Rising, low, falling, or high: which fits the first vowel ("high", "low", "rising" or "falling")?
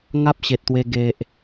high